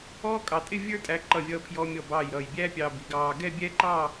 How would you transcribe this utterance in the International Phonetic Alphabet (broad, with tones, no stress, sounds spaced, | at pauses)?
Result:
ɔː˥ kʼ ɑ˧ tʼ ɪ˥˧ vʲ ə˞˥ tʼ æ˧ ǃ ʌ˧˩ vʲ ʌː˧ pʰ j ɔ˧ mʲ ɔ˧˩ b ɑː˧˩ j ɾ ʌː˧˩ j bʲ æ˥ pʲ ɑː˧ b i˩˧ ɡ ɑː˧ ɡ ɛ˥˧ bʲ ɛ˥ ǃ ɑ˥˧